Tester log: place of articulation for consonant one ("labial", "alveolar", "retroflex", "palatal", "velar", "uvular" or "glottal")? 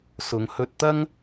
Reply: alveolar